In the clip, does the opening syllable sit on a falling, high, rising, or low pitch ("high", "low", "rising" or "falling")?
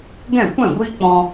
falling